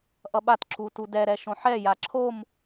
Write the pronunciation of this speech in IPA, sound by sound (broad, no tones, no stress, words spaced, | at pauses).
ʔʌɓat ǁutudɛ ɾɛʃõħɛ jaǁʰom